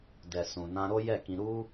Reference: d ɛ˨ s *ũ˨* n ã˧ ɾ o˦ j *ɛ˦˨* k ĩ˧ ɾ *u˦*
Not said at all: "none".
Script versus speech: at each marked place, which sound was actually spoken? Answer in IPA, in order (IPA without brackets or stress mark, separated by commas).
ũ˨, ɛ˦˨, u˦